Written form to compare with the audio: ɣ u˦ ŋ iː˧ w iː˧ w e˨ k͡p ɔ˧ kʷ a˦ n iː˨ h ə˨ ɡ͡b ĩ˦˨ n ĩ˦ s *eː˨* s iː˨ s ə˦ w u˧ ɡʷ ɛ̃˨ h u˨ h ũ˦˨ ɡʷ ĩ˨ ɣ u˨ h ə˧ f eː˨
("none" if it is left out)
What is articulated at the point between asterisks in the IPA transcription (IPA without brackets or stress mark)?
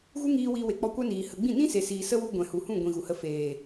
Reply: e˨